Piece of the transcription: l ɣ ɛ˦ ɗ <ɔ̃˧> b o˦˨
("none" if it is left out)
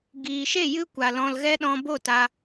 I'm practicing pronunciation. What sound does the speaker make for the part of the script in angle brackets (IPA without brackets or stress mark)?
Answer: ɔ̃˧